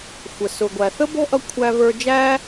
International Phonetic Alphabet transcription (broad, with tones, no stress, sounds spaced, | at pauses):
xʷ ə˩ s ʊ˩ ɡʷ æ˩ θ ə˥ b ɛ̤˥ ʔ ʌ˧ kʷʰ æ˧ v ə˞˧ d͡ʒ æ˥